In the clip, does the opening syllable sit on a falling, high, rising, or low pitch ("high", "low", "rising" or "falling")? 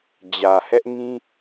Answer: low